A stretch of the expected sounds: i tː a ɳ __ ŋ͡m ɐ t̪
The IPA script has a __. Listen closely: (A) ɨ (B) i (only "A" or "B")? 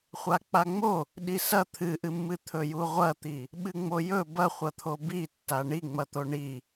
B